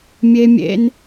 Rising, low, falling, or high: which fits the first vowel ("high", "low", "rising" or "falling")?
high